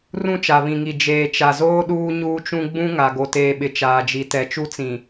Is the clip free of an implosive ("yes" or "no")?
no